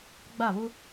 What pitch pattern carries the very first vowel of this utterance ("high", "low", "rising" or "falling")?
falling